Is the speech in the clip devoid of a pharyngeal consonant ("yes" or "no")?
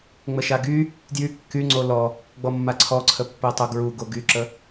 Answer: yes